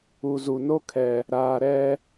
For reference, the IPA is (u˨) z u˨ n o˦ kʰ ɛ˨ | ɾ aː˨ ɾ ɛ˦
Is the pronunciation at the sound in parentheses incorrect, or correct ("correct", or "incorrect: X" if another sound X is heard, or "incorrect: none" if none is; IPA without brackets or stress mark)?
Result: correct